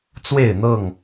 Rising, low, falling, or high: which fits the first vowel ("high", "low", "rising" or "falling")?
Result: falling